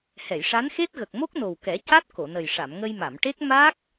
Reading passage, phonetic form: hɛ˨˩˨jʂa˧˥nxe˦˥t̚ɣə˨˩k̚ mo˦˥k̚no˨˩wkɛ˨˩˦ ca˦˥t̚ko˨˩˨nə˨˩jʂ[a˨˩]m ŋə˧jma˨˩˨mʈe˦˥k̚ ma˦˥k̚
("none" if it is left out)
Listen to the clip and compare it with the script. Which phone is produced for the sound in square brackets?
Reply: a˨˩˨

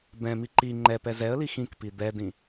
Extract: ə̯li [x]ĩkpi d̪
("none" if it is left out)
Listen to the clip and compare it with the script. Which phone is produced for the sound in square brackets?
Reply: x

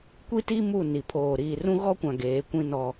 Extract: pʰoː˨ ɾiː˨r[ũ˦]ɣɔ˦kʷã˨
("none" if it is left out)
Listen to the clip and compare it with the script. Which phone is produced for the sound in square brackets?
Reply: ũ˦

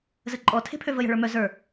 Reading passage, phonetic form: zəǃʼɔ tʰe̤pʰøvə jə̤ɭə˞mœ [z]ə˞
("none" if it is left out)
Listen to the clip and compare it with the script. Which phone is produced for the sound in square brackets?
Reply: z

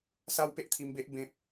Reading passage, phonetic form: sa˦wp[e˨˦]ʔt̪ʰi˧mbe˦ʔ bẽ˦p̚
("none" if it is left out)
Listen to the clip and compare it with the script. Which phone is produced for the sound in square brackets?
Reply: e˦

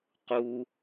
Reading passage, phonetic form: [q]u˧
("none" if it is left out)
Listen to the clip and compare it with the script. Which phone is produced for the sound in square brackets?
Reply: q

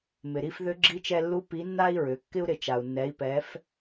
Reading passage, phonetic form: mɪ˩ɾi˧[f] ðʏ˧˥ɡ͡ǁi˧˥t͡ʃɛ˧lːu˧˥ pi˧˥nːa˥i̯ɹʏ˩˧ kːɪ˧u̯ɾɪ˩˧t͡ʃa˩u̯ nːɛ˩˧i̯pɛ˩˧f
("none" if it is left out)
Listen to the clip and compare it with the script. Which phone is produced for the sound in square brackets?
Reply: f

